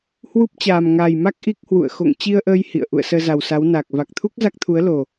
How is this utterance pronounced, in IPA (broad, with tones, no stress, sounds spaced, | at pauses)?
h w u˦˥ p̚ t͡ɕ aː˨˩ m ŋ aː˨˩ j m a˦˥ k̚ ʔ i˦˥ k̚ h w ṵ˧˨ ə̯ x o̰˧˨ ŋ t͡ɕ i˧ ə̯ ʔ əː˧ j h ḭ˧˨ ə̯ ʔ ṵ˧˨ ə̯ s əː˧ z a˨˩ w s a˨˦ w n aː˨˩ k̚ v a˨˩ k̚ t̪ʰ u˦˥ k̚ z a˦˥ k̚ t̪ʰ u˨˦ ə̯ l o˨˩